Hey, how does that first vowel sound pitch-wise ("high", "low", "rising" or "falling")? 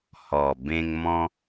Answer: low